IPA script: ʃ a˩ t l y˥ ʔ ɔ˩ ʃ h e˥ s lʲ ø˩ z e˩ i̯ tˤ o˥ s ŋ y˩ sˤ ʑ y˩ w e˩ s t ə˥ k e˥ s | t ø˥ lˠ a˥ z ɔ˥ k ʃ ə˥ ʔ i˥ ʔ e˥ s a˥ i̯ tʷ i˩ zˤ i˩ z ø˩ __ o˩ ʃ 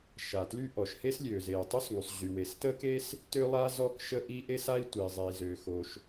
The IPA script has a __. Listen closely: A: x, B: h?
A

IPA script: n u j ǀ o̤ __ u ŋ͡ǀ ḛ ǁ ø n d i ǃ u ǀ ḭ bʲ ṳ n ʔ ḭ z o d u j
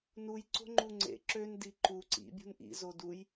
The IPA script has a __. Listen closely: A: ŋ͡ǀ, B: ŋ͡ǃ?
B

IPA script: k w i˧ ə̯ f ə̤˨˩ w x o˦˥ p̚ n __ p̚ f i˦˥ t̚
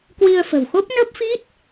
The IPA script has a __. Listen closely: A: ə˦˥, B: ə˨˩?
A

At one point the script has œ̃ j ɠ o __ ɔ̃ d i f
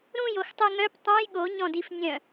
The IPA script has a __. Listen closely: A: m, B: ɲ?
B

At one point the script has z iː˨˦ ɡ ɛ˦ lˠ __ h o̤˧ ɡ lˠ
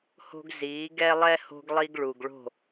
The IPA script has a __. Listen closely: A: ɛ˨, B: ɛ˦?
B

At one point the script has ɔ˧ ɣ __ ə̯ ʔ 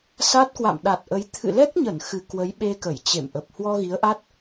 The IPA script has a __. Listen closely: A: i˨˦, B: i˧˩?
A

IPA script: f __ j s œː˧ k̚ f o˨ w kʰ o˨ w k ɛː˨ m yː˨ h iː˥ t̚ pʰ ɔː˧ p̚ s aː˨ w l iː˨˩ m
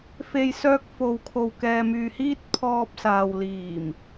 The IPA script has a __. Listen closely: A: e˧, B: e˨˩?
A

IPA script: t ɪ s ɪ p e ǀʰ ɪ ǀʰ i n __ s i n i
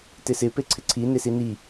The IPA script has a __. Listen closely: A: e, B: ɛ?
A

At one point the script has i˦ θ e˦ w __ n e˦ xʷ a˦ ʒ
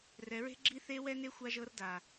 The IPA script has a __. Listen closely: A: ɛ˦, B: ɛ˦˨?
A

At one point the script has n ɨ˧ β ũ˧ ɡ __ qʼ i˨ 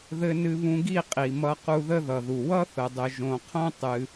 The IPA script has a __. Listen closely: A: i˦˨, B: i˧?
A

